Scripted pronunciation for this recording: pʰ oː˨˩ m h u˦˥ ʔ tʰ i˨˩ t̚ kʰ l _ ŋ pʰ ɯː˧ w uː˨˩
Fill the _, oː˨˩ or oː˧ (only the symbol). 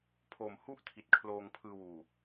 oː˧